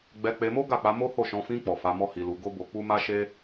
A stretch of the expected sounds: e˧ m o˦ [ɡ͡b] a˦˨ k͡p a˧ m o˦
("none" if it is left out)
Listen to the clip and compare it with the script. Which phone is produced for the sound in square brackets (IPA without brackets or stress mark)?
ɡ